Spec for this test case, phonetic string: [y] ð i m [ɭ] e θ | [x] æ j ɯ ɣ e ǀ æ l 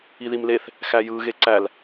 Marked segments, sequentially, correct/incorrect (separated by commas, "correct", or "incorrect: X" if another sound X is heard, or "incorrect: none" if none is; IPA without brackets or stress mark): incorrect: i, incorrect: l, correct